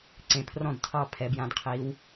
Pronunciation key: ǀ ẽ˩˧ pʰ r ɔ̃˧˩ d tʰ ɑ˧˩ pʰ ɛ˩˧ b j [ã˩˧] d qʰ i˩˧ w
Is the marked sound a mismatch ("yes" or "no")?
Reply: no